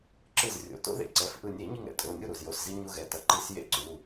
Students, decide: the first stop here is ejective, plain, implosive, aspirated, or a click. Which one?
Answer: click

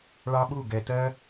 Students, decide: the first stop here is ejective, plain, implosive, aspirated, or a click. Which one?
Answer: implosive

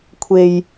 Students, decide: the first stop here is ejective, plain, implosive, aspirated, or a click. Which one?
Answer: aspirated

